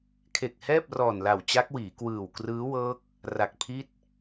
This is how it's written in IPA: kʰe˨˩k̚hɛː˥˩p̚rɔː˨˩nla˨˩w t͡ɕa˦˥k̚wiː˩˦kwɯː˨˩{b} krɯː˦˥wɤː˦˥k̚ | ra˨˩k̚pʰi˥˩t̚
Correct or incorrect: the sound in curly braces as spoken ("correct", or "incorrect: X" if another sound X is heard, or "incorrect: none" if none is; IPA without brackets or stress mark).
incorrect: w